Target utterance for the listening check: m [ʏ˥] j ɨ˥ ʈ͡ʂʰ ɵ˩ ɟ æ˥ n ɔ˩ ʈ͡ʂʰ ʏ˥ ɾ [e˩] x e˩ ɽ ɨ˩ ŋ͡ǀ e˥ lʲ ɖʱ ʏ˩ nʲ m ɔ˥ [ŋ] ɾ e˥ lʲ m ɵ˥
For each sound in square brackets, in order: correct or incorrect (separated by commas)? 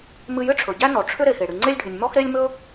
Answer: incorrect, correct, incorrect